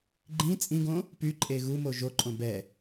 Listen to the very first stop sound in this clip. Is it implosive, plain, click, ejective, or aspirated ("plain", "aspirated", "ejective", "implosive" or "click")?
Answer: click